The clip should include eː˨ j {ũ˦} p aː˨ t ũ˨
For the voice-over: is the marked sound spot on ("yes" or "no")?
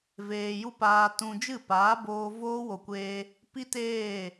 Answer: no